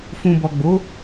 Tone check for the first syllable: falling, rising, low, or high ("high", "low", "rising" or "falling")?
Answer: low